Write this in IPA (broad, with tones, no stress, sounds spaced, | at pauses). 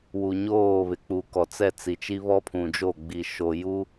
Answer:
w u˨ ɲ oː˦˨ β ɪ˨ k͡p u˨ k ɔ˨ t͡s ɛ˦˨ t͡s i˨ t͡ʃ i˦ β ɔ˦ pʰ ũ˨ d͡ʒ o˦˨ ɡ͡b i˨ ʃ o˨ j u˦